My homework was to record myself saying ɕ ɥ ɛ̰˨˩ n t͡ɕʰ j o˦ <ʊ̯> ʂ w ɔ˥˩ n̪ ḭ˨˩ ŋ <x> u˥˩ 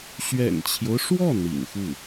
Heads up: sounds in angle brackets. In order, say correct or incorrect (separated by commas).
correct, correct